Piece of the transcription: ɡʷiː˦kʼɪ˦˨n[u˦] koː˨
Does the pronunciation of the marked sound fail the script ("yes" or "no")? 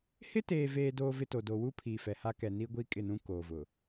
yes